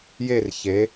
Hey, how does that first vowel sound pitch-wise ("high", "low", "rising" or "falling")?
falling